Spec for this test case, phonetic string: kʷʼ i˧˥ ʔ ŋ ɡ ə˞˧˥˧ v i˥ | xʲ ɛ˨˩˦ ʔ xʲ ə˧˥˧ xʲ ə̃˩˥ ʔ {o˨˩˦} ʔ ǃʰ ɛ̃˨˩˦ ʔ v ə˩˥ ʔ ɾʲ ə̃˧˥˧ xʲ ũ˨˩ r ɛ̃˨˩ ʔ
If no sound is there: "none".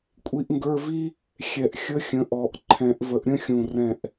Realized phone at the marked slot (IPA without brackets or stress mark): ɔ˨˩˦